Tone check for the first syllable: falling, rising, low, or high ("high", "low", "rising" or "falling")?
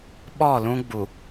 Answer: falling